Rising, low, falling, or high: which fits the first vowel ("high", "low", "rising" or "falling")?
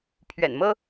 low